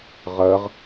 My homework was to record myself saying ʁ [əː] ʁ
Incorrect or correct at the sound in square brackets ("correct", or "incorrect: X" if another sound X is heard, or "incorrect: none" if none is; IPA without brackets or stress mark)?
correct